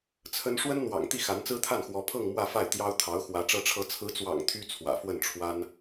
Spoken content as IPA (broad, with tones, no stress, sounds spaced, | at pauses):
t͡sʰ ə˥ n ʂ w ə˥ n n̪ w ɑ̰˨˩ ŋ t̪ i˥˩ x a˧˥ n t͡s ɹ̩˥ t̪ʰ a˥˩ n x w ɔ˧˥ pʰ ɤ˥˧ ŋ m w ä˥˧ f a˥˩ ɪ̯ t̪ j ɑ˥ ʊ̯ t̪ʰ ɑ˧˥ ʊ̯ x w ä˧˥ ʈ͡ʂ ɤ˧˥ ʈ͡ʂʰ ɤ˧˥ t͡sʰ ɹ̩˧˥ t͡s w ɑ̰˨˩ ŋ t̪ʰ y˥ t͡sʰ w ä̰˨˩ f w ə˥˩ n ʈ͡ʂʰ w a˥ n